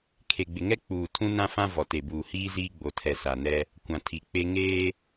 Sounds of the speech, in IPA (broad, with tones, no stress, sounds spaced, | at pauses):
kʰ e˨ ɡ͡b ɪ˨ ŋ ɛ˦ k͡p uː˨ tʰ ũ˦ n ã˦ f ã˦ v ɔ˨ t e˨ b uː˨ h iː˦ z iː˦ ɡ͡b o˨ tʰ ɛ˨ s a˨ n ɛ˦ | kʷ ã˨ tʰ i˨ k͡p e˦ ŋ eː˦